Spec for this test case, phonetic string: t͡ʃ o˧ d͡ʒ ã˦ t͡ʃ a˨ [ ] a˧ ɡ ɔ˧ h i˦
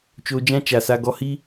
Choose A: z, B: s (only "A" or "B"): B